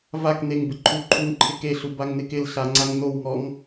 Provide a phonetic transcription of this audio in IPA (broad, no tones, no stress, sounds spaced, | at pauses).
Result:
v a k n e ŋ b ɪ ǃʰ u ǃʰ u ŋ ǃʰ ɪ k e ɬ u b a ŋ n ɪ k ɪ l ɬ a ŋ͡ǀ a ŋ n o w ŋ ɔ ŋ